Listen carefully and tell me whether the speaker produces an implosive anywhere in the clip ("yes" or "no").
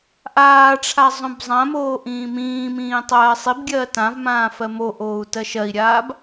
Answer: no